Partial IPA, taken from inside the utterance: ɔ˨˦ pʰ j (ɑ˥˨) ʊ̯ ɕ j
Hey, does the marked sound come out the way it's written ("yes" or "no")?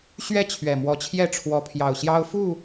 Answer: no